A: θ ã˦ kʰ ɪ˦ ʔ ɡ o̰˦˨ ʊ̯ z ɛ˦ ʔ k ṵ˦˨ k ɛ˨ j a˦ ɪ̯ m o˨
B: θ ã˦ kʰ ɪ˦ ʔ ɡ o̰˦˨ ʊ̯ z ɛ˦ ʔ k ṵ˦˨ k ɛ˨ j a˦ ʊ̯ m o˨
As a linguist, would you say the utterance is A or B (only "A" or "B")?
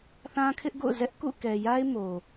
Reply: A